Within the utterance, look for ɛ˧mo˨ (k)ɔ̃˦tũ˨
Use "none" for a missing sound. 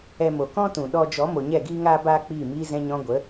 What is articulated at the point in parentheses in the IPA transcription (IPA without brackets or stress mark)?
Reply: k